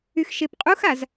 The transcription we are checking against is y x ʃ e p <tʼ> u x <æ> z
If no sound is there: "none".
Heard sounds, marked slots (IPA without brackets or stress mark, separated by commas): qʼ, a